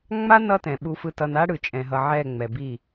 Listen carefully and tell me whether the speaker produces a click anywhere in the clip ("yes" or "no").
no